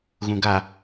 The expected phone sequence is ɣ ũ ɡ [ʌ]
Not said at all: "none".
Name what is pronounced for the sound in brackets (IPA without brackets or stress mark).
a